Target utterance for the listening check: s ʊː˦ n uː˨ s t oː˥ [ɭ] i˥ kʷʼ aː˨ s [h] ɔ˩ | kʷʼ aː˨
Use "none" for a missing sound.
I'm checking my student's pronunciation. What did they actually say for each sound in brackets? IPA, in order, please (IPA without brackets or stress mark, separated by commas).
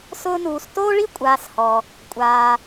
ɭ, h